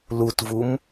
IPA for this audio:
l u t v u m

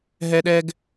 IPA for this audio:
ɦ ɛ˥ ɗ ɛ˥ ɡ

